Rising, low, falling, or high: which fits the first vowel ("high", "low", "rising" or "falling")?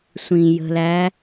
low